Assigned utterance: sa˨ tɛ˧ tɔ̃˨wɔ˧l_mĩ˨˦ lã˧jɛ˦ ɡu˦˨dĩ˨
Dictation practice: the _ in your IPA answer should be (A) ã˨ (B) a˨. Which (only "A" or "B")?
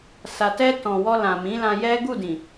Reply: A